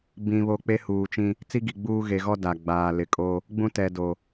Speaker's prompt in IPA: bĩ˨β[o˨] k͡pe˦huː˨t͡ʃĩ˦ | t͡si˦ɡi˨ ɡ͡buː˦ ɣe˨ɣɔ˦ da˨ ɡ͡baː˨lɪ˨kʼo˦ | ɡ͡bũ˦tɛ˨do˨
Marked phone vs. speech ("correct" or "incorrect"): correct